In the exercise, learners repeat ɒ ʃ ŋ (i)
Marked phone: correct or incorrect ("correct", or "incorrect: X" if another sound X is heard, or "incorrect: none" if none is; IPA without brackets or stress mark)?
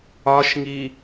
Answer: correct